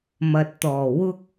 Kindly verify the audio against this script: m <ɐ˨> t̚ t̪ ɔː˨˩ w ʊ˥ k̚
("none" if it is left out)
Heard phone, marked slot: ɐ˨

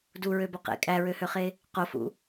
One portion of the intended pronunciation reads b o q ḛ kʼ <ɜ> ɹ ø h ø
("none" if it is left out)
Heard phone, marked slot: æ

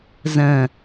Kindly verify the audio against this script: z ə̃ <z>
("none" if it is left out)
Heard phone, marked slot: none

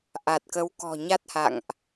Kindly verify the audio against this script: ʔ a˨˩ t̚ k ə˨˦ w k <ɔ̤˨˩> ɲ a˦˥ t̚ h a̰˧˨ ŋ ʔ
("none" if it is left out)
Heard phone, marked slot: ɔ̤˨˩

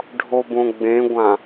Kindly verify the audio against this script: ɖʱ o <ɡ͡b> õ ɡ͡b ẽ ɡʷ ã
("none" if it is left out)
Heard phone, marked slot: b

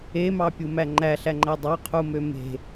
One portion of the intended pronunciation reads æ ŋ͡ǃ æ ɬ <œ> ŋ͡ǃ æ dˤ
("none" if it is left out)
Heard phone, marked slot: æ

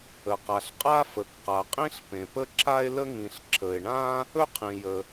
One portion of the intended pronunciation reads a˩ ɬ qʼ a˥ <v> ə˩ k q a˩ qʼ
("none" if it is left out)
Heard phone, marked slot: f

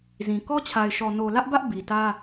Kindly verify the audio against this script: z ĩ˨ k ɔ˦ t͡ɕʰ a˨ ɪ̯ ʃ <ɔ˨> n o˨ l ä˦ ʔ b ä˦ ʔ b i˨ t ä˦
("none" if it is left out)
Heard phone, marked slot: ɔ˨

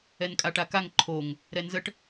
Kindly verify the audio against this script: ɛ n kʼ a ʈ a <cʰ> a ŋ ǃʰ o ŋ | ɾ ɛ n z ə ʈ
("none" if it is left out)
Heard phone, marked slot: k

